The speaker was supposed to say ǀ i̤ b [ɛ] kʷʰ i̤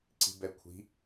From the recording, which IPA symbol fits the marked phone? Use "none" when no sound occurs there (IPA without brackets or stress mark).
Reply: ɛ